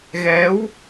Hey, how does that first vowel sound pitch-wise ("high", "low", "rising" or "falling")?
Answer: rising